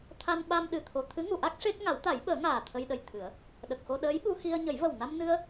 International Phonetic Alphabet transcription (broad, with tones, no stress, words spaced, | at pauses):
t̪ʰa˧nɓa˧mɗɨ˨˩t̪ʰo˨˩ t̪ʰɨ˧˥ŋu˨˩˨ʔa˦˥k̚ ʂe˦˥k̚ ŋa˨˩˦wt̪a˨˩˦jɓəː˨˩˦ŋaː˨˩ t̪ʰə˧jɗə˨˩j t̪ʰɨ˨˩˦ə̯ | ɗə˨˩k̚xo˧ ɗəː˧˥jɓu˧ xi˧ə̯ ɲə˨˩˦jvə˨˩wna˧mnɨ˧ə̯